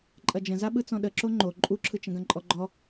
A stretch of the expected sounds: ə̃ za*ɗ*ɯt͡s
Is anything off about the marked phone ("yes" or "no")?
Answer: yes